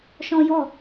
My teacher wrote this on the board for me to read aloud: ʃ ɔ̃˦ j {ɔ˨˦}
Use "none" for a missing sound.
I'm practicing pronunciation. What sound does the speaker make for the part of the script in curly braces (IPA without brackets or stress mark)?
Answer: ɔ˦˨